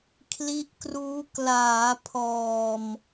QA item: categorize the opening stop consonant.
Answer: aspirated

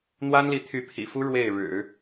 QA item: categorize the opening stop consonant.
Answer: aspirated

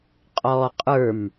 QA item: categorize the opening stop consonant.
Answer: ejective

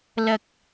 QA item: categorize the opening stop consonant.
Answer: plain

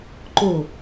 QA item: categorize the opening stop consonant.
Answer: click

